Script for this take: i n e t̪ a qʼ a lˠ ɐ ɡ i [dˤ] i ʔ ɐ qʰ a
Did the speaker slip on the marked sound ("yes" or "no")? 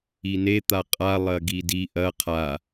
yes